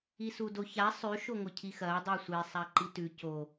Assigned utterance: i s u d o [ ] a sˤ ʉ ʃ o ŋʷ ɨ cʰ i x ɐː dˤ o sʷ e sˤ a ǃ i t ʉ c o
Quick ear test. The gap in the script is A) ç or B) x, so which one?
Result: A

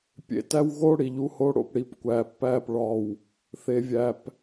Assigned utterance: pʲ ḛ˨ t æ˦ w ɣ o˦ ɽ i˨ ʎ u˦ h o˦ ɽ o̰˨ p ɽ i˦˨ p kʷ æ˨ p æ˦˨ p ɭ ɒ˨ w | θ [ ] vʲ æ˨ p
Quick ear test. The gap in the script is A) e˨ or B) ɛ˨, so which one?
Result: A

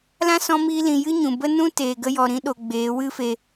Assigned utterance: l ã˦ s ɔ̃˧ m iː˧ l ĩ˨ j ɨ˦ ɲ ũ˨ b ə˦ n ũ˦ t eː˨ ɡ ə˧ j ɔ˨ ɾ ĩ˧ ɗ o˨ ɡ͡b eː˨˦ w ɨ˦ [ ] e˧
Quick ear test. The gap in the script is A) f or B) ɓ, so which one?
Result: A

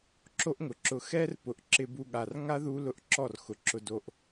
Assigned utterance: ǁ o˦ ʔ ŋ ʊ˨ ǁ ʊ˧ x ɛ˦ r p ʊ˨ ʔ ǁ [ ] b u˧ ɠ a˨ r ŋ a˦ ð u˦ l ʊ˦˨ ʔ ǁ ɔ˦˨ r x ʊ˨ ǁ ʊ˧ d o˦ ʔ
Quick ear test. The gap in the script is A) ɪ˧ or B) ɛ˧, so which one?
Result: A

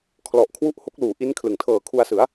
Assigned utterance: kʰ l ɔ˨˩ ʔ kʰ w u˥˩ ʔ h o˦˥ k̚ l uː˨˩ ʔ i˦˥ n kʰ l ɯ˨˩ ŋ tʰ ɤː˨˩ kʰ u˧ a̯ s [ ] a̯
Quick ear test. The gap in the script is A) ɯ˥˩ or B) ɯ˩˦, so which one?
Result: B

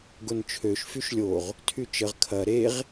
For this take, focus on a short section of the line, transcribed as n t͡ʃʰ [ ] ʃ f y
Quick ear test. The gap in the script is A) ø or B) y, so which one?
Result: A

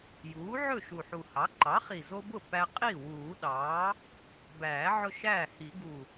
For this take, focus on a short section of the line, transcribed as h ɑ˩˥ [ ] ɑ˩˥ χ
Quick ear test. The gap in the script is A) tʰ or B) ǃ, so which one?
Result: B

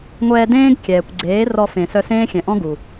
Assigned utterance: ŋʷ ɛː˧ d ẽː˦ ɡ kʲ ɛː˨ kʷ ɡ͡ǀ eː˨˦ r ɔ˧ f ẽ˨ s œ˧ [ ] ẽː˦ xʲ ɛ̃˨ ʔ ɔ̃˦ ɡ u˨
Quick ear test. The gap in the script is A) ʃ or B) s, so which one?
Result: B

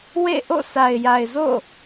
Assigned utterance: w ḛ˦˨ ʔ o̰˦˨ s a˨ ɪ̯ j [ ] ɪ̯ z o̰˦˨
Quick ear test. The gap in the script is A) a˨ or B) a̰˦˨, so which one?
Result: A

